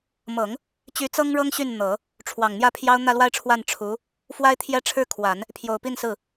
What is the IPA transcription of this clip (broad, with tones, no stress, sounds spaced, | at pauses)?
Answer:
m ɤ˨˩˦ ŋ | t͡ɕ y˧˥ t͡s ɤ˥ ŋ ɻ ɤ˥ ŋ ɕ y˥˩ n n̪ ɤ˨˩˦ | ʈ͡ʂʰ w ɑ˨˩ ŋ n̪ j ä˥˩ pʰ j ɑ˥ ʊ̯ n̪ ä˥˧ l w a˥˧ ɪ̯ ʈ͡ʂʰ w a˥˩ n ʈ͡ʂʰ u˧˥ | f w a˥ ɪ̯ t̪ʰ j ɛ˥˧ ʈ͡ʂʰ ɻ̩˥˩ kʰ w a˨˩˦ n | pʰ j o˨˩ ʊ̯ p i˥˧ n s ɹ̩˥˩